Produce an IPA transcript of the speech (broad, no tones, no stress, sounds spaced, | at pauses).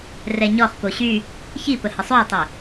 r ɛ ɲ ɔ χ p o ɕ y | ç i p ə h ə sˤ ø ɪ̯ tˤ i